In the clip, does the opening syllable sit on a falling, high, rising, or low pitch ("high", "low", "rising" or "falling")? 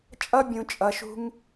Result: high